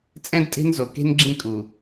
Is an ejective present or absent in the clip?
present